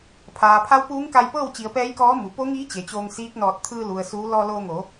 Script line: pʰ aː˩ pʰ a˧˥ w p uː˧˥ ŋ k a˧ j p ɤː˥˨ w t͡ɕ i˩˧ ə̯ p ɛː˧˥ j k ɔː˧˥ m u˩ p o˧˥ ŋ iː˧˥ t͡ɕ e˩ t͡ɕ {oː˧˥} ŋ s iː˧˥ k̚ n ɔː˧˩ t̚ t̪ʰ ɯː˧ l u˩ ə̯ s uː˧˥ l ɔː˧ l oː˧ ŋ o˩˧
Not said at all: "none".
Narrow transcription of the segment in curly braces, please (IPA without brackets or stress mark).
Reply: oː˧